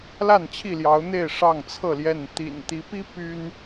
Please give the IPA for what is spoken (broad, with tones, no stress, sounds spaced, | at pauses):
l a˥˨ n t͡ɕʰ i˥˨ l j ɑ˨˦ ʊ̯ n̪ e˥˨ ɪ̯ ʂ ɑ˥˨ ŋ t͡sʰ ɤ˥˨ l j ɛ˥˨ n t̪ ḭ˨˩ n t̪ i˨˦ p i˦ p y˦ n